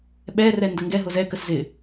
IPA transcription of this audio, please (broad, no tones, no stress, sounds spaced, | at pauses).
ɓ ɛ r ɛ n d ə ŋ ɡ ɛ ɦ ʊ z ɛ k ə s z ɪ